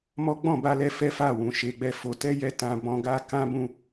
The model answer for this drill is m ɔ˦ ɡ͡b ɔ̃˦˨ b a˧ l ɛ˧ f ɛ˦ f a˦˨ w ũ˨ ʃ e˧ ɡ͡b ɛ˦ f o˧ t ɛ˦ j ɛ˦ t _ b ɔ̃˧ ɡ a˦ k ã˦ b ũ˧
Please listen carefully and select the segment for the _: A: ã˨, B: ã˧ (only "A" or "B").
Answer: B